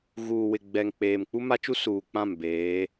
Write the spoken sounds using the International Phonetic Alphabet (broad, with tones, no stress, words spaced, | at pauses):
ɣuː˨ wɪ˨ɡ͡bɛ˨ŋk͡peː˨m k͡pu˦ma˦t͡ʃu˦ suː˨k͡pã˦˨m beː˨˦